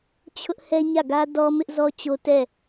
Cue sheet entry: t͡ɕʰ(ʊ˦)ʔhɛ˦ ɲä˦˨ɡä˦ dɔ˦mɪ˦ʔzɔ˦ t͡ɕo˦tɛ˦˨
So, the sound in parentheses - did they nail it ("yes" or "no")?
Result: yes